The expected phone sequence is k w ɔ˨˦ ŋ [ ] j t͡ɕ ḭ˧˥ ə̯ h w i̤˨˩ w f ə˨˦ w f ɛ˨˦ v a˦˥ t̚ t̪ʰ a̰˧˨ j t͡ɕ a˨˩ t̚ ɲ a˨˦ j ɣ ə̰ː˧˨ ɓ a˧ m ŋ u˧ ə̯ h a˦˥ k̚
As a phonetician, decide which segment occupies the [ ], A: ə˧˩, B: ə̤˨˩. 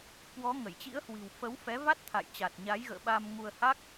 A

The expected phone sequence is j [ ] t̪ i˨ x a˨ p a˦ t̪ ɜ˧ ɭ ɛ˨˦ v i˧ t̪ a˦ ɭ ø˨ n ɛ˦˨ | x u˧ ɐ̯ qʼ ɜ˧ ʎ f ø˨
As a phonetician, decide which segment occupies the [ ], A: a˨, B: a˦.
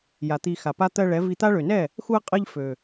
A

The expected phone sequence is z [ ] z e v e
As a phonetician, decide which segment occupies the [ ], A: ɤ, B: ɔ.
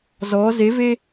B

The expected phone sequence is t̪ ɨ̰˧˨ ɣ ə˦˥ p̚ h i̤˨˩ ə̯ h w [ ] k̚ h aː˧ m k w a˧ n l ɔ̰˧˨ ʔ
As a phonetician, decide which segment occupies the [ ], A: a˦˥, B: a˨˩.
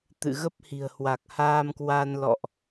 B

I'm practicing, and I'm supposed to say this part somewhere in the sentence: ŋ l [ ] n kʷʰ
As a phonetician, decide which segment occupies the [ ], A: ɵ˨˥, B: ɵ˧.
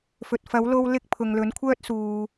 A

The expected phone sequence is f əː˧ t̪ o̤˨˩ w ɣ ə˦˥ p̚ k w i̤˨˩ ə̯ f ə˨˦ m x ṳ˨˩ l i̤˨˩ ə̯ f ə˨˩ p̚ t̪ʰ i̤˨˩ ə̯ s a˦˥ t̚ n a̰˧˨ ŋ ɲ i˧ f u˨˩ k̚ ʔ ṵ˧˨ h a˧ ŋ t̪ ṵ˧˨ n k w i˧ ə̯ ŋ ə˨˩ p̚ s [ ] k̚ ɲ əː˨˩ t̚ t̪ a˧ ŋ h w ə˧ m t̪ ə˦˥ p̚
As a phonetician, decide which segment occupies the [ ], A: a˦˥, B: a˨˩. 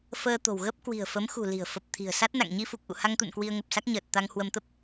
A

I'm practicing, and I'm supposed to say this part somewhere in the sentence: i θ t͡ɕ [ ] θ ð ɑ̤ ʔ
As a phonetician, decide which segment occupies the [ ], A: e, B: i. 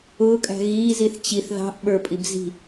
B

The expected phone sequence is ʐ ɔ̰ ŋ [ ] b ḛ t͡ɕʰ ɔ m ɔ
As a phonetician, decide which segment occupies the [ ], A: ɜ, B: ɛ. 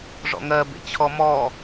A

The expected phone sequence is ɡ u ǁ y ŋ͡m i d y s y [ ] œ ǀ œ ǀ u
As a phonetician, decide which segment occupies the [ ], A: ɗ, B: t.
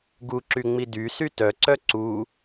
B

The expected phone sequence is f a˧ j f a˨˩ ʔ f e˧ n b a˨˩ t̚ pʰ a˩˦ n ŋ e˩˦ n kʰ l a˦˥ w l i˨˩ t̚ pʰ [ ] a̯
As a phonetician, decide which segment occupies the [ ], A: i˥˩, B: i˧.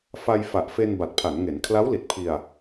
B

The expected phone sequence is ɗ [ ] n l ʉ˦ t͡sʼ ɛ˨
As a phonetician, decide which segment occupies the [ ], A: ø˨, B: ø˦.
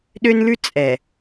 B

